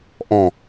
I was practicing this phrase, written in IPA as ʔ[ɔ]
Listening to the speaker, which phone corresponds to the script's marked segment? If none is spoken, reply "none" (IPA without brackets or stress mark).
ɔ̃